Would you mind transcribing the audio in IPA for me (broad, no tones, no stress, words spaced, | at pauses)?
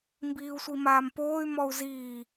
mbiːu̯sʷimaːmpoːy̯ mɔu̯ziː